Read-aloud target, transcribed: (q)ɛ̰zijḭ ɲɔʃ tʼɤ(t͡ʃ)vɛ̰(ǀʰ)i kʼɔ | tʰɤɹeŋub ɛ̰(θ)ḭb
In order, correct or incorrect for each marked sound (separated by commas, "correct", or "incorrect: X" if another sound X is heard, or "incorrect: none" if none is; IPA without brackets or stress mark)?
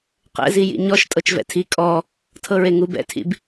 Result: correct, correct, incorrect: tʰ, incorrect: tʰ